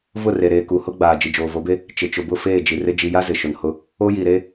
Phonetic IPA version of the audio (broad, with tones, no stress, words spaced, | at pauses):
vʊ˦˨re˨ ɾeː˨ku˨hʊ˦ ɡ͡baː˨ d͡ʒi˨d͡ʒoː˨vo˨˦be˦ | t͡ʃɪ˨t͡ʃʊ˨bʊ˦˨ feː˦˨d͡ʒi˨rɪ˦ d͡ʒi˨ja˦ zɪ˨ ʃʊ˨nhʊ˦ | o˦ji˨ɾe˦